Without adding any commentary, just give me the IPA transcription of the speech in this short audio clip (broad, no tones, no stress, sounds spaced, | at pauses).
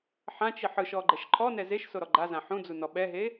ħ ã t͡ʃ i ħ ɯ ʃ ɔ ɡ͡ǃ ɛ ʃ ǃʰ ɔ n ɛ z e ʃ s o ɾ ɔ ɡ͡ǃ a z ã ħ ũ d͡z u n ɔ ɓ ɛ ɦ e